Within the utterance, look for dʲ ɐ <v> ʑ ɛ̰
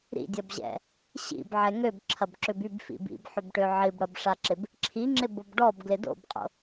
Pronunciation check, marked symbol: incorrect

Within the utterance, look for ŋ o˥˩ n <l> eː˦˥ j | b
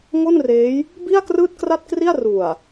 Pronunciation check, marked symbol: incorrect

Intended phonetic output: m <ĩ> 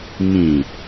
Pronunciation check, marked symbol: correct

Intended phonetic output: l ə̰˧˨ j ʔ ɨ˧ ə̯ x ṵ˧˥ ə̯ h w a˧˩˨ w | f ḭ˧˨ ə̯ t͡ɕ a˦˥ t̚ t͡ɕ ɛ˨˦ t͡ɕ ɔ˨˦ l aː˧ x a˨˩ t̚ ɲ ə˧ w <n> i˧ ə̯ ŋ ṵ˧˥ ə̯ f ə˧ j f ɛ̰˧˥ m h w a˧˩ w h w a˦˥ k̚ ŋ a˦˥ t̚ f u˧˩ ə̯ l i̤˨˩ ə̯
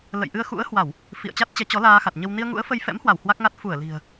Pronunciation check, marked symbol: correct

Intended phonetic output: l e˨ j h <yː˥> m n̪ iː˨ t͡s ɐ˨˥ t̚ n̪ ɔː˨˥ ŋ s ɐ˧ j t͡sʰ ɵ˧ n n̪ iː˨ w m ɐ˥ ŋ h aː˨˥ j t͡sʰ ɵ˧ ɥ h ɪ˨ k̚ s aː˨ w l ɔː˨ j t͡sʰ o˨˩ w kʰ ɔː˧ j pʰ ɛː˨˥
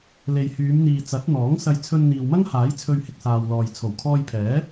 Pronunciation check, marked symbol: incorrect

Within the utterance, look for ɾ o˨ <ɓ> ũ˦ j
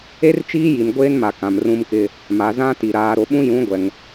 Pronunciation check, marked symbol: correct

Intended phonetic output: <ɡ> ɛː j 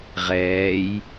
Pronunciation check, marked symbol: incorrect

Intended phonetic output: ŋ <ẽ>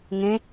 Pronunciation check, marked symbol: correct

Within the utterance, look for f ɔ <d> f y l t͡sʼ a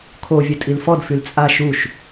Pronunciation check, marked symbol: correct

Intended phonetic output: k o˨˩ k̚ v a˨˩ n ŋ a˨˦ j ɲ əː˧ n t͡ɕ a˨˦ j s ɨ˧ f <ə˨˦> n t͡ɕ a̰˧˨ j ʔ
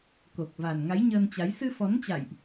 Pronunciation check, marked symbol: incorrect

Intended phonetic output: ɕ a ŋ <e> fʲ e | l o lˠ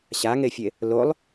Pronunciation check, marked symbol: correct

